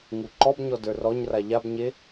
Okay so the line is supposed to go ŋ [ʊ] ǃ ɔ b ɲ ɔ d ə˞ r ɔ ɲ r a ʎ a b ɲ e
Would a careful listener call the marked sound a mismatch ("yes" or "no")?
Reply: yes